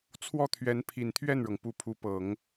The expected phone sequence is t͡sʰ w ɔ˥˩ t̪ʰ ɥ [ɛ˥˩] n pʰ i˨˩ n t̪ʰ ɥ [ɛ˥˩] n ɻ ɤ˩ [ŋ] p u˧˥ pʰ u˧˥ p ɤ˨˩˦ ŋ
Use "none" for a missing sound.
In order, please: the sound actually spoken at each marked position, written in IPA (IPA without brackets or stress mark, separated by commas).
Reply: ɛ˧˥, ɛ˥˩, ŋ